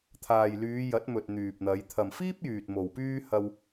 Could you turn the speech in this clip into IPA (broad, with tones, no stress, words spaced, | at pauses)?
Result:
t̪ʰaː˨jlyː˨˧jɐ˨˥t̚mɵ˨t̚ n̪yː˨p̚n̪ɐ˨˧j t̪ʰɐ˨mfiː˥p̚jyː˨t̚ mo˨wpyː˥ hɐ˧w